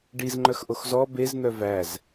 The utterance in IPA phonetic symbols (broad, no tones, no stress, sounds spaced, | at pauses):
ɖ i z ŋ͡ǃ œ x ʔ o x z ɔ b e z n̪ œ v æ z